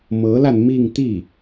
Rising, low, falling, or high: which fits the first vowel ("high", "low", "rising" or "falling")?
rising